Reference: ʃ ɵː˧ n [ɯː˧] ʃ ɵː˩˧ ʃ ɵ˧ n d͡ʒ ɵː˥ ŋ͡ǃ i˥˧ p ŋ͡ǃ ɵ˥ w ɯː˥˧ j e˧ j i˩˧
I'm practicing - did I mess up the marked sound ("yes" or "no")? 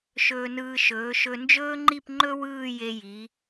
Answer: no